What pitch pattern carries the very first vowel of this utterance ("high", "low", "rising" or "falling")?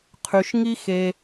low